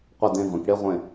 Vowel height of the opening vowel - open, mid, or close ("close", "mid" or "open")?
open